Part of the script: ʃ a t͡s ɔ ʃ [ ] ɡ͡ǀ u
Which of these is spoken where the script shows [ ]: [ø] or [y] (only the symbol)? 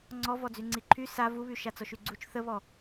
y